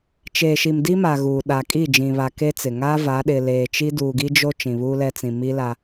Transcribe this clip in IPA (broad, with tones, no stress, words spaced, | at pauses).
t͡ʃeː˨ʃi˨m di˦ma˨ ɣuː˨ɗa˨kʼi˦˨ d͡ʒĩ˨βa˨ ke˦t͡sɪ˨ ŋa˦va˨˦ɗɪ˨ leː˨ t͡ʃi˦duː˨ɡi˦d͡ʒo˦ t͡ʃĩ˨βuː˦lɛ˦t͡sĩ˨ mi˦la˦